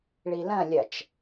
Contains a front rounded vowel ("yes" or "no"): no